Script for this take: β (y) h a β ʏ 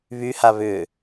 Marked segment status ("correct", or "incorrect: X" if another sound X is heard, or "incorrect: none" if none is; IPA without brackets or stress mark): correct